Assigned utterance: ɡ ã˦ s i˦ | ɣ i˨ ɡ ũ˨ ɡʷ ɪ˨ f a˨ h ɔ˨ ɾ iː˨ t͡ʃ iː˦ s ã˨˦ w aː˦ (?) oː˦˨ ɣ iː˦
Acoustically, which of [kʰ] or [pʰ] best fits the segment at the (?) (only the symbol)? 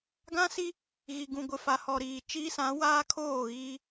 kʰ